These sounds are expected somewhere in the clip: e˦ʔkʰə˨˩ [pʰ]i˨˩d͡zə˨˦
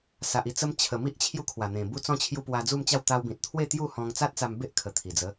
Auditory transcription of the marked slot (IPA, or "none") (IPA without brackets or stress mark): t̪ʰ